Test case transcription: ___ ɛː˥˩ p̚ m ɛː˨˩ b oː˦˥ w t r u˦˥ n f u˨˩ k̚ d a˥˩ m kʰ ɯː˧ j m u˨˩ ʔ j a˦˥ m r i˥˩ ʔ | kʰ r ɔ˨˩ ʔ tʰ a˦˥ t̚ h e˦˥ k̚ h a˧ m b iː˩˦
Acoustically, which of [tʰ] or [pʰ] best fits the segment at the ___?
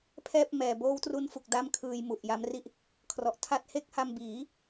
pʰ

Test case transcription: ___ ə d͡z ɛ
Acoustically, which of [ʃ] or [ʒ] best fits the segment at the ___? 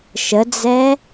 ʃ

